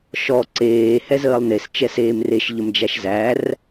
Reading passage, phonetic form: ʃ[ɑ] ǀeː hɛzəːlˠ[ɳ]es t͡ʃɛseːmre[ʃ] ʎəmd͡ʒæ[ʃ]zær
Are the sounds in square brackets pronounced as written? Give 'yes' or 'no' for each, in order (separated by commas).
no, no, yes, yes